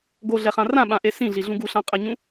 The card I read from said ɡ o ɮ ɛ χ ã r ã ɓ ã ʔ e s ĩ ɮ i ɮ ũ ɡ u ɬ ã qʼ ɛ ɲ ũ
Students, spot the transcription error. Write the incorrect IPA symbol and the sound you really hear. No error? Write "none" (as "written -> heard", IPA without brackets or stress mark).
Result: none